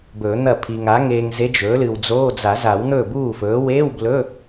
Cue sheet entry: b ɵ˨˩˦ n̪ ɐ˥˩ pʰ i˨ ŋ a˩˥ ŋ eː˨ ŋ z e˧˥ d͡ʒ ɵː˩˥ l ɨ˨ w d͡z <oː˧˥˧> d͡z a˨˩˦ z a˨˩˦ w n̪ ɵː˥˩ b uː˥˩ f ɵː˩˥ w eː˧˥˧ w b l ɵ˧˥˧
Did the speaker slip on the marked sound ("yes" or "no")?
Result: no